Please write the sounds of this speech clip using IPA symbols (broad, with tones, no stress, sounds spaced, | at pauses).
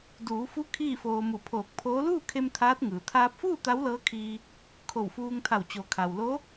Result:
d uː˩˧ f u˧˥ kʰ iː˥˨ f oː˧ m u˧˩ pʰ oː˧˩ k̚ pʰ oː˧˥ l uː˥˨ kʰ e˧ m t̪ʰ aː˧˥ t̚ ŋ ɯː˩ t̪ʰ aː˧ p̚ f uː˥˨ t̪ a˧˥ w l ɤː˧˥ kʰ iː˧ | kʰ o˧˩ w f uː˧ ŋ t̪ʰ a˧˩ w t͡ɕ o˩ kʰ a˩ w l o˧˥